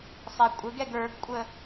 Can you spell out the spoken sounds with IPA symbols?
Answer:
sˤ ɛ kʷʼ ə ɡ ɛ ɡ ə˞ ɡ kʷʼ ə

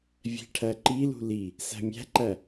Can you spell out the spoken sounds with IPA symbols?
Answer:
vʲ æ̤ ʈʰ æ ǃ i l ṳ l i | s æ̤ mʲ æ̤ ǃ æ

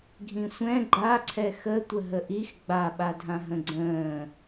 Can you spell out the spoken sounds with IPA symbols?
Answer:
ɡʱ ĩ sʷ ɛ̃ ɡ͡ǃ a ǀʰ ɛ x ə tʷ ə ɦ ə ʔ i x ɡ͡b a ɓ a dʱ ã ɦ ə̃ ɡ͡ǀ ə̃ː

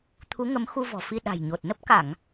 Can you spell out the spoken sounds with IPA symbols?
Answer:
t̪ʰ u˨˦ ŋ ə˨˦ m x u˧ v ɔ̤˨˩ f i˧ ɗ a̤˨˩ j ɲ o˨˩ t̚ n ə˦˥ p̚ k a˧˩˨ ŋ

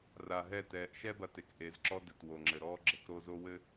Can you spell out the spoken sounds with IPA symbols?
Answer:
r a˨ ɦ ɛ˦˨ t ɛː˨ ʔ ʃ ɛ˦ b ɐ˨ t e˨ k ʔ e˨˦ z ǁ ɔ˦ d ɘ˨ t w o˨ ŋ͡ǁ ɘ˨ ɾ ɔː˦ ɡ͡ǁ ɘ˨ k ɾ o˦ z o˦ w ɘ˦

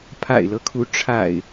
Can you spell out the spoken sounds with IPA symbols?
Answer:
pʰ a̰˨˩ ɪ̯ l ɤ˦ kʰ u˨˦ ʈ͡ʂʰ a̰˨˩ ɪ̯

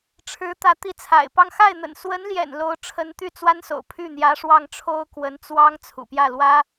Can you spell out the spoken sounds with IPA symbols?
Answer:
ʈ͡ʂʰ ɻ̩˧˥ t̪ ä˧˥ t̪ i˧˥ t͡sʰ a̰˨˩ ɪ̯ p ɑ˥˧ ŋ x a˥˩ ɪ̯ n̪ ə̰˨˩ n s w ə˧˥ n l j ɛ̰˨˩ n l o˧˥ ʊ̯ ʈ͡ʂʰ ə˧˥ n t̪ y˥˩ t͡s w a˥ n s o̰˨˩ ʊ̯ pʰ y˥˩ n̪ j ä˧˥ ʂ w ɑ˥˩ ŋ ʈ͡ʂʰ o˥ ʊ̯ k w ə˧˥ n t͡s w ɑ˥ ŋ t͡sʰ ṵ˨˩ p j ä˥˩ l w ä˥

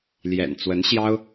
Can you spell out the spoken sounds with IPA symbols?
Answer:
l j ɛ̰˨˩ n t͡s w ə˧˥ n ɕ j ɑ˥ ʊ̯

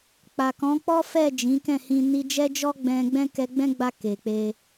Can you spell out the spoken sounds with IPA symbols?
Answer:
k͡p a˨ k ɔ̃˨˦ k͡p ɔ˦ f ɛ˦˨ d͡ʒ ĩ˨˦ k ɛ̃˦˨ h ĩ˧ n i˧ d͡ʒ ɛ˦ d͡ʒ ɔ˦ ɡ͡b ɛ̃˧ ɡ͡b ɛ̃˦ k ɛ˧ ɡ͡b ɛ̃˦ ɡ͡b a˧ k e˨ k͡p e˧

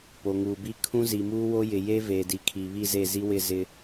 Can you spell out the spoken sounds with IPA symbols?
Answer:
p o˨ ŋ uː˨ b i˦ kʰ ũ˦ z i˨ m uː˦ w o˦ j ɪ˨ j e˦ v eː˨ d i˨ kʰ i˨ β i˦˨ z e˦˨ z i˦ w ɪ˦˨ z ɪ˦

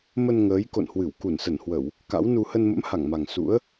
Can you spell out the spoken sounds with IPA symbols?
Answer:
m ə˧ n ŋ əː˨˦ j k o̰˧˨ n h w ɨ˧˩ w k u˧˩ n s ə˧˩ n h w ə˧˩˨ w | k a̰˧˥ w n u˧ h ə˧ n m ə̰˧˥ m h a˧˩ ŋ m a˨˩ ŋ s ṵ˧˥ ə̯

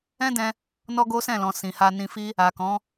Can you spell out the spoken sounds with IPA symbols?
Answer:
ɛ̃˦ d ɛ̃˧ | n ɔ˦ ɡ o˦ s ɛ̃˦˨ l ɔ̃˨ s ĩ˨ h a˧ n ĩ˧ f i˦ | a˨ k ɔ̃˨˦

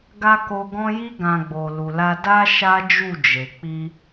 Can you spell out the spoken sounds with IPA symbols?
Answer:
ɡ a˧ k o˧ ɡ ɔ̃˦ j i˧ ɡ ã˨ ɡ͡b o˨ l u˨ l a˧ d a˧ ʃ a˦ d͡ʒ u˦˨ d͡ʒ e˨ k͡p i˧

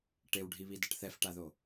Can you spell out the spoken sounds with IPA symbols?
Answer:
ʈ e w ɖʱ i β i d ɐ ʈ θ ɛ f ʈ a ð o

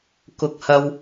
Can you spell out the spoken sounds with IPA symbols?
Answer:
k ʊ˧ k̚ h ɐ˧ w

